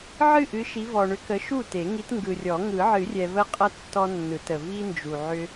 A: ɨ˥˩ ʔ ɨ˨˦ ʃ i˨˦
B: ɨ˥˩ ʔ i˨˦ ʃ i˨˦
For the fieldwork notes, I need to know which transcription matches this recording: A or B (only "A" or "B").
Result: A